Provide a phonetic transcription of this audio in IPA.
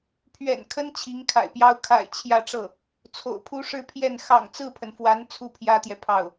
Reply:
pʰ ɥ ɛ̰˨˩ n kʰ ə˥ n t͡ɕʰ i˧˥ ŋ kʰ a̰˨˩ ɪ̯ p j ɑ˥ ʊ̯ kʰ a̰˨˩ ɪ̯ t͡ɕʰ j ä˥˧ ʈ͡ʂ ɤ˥˩ | t͡sʰ o̰˨˩ ʊ̯ pʰ u˥ ʂ ɻ̩˥˧ pʰ j ɛ˥˩ n x ɑ̰˨˩ ŋ t͡s ɹ̩˥˩ pʰ ə˩ n f w a˧˥ n t͡sʰ u˥ pʰ j ä˥ t̪ j ɛ˨ pʰ ɑ˥˩ ʊ̯

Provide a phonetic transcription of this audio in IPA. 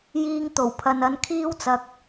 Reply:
j iː˧ ŋ t̪ o˨˩ w pʰ ɐ˨ n ɐ˨˧ n kʰ iː˥ w t͡s ɐ˨ k̚

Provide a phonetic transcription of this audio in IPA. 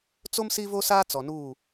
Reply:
t͡s o˦ m s i˦ v o˦ s aː˦ t͡s ɔ˨ n uː˦˨

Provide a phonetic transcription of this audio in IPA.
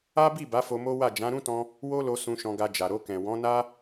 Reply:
a˦ b i˦˨ b a˨˦ f o˧ m o˦ w a˦˨ d͡ʒ ã˨˦ ɾ ũ˦ t ɔ̃˧ | w o˦ l o˧ s ũ˧ ʃ ɔ̃˧ ɡ a˧ d͡ʒ a˨ ɾ o˧ k ɛ̃˨ w ɔ̃˨˦ n a˦

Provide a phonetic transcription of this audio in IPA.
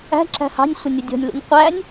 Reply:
æ̤ ǁ æ̤ h ɑ̤ nʲ sʷ ə nʲ ʊ dʲ ɔ̤ nʲ l ṵ nʲ qʷ æ nʲ

